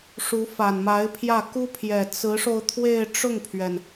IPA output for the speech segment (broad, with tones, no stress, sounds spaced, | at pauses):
ʂ u˧˥ f a˨˩ n m a˧˥ ɪ̯ pʰ j ä˥˩ k u˥ pʰ j ɛ˨˩ t͡s ɹ̩˧˥ ʂ o˧ ʊ̯ t̪ʰ w e˥˧ ɪ̯ ʈ͡ʂ ʊ˥˩ ŋ pʰ ɥ ɛ˩ n